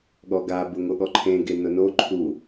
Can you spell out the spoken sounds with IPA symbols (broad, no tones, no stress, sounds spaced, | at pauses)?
ɠ ɔ ɡ a b ʊ ŋ o ɠ ɔ ǃʰ ẽ ɡ e n ʊ n o ǃʰ u